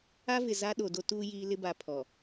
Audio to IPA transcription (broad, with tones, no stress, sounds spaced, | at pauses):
a˦ v ɪ˨ z a˦ ɗ o˨ d o˦ t uː˦ j iː˦ l ɪ˦ b a˨ pʰ ɔ˨